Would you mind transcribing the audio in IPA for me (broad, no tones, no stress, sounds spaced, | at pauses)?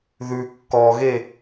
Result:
ð ʉ kː ɔ ɣ e